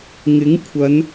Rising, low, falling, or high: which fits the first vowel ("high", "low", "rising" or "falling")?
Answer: rising